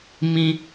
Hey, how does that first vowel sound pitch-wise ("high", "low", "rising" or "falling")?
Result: high